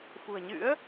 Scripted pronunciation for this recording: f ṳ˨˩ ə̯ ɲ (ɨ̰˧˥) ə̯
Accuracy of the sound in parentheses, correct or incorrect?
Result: correct